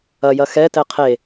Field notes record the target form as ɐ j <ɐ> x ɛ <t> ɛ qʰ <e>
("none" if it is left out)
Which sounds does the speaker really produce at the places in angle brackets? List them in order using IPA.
ɐ, t, e

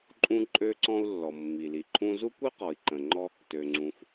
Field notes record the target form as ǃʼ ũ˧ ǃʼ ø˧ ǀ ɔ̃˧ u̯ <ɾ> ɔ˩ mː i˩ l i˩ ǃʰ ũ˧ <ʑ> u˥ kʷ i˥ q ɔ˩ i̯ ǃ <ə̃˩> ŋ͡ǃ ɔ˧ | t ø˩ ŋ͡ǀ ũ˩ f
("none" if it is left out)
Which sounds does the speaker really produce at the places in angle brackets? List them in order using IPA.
lː, z, ə̃˩

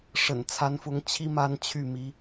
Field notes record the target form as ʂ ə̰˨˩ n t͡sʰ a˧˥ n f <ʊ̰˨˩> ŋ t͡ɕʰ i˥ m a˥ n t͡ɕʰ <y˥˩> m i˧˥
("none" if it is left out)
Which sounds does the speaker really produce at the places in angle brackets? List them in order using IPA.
ʊ˧˥, y˥˩

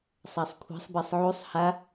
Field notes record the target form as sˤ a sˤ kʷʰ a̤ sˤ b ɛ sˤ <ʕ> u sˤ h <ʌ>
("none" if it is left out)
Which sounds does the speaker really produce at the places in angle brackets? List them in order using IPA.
ʕ, a

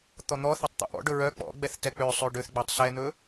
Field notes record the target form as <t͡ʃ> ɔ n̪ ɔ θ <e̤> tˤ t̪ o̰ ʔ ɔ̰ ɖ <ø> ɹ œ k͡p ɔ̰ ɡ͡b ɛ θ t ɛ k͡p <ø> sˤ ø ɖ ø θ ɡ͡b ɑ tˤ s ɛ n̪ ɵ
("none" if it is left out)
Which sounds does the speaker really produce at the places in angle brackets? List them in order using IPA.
t̪, e, ɵ, ø

